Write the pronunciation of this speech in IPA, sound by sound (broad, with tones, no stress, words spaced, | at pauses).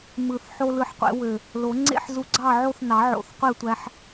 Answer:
mɯ˨˩˦θħo˧ lɯ˧ħqʷḛ˨˩˦ wø˨˩ | lo˨˩˦ŋ͡ǀḛ˥˨ħzu˧ ɡ͡ǀɑ˥˨ʕo˥˨θnɑ˨˩˦ʕo̰˨˩θ qʷe˥˨tʷæ˧ħ